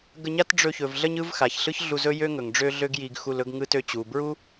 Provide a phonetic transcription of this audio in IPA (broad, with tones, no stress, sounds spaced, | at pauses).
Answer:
ɡ ə˧ ɲ a˥ t ɖ͡ʐ ɵ˧ ç ɵ˩ v ɮ ə˥ ɲ ɯ˥ v x a˩ ç ɬ ɯ˥ ç ɮ u˧ z ɵ˥ j ø˥ ŋ ɵ˩ ŋ ɖ͡ʐ ø˥ ɮ ø˥ ɡ j i˧ ɡ x u˧ l ɵ˥ ɡ ŋ ɯ˥ t ø˧ t͡ɕ u˩ b ɹ u˥